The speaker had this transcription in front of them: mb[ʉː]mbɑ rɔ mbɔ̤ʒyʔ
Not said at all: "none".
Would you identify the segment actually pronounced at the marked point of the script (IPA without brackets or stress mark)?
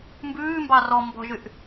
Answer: ʉː